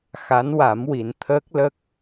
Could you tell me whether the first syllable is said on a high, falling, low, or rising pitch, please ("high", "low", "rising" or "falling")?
rising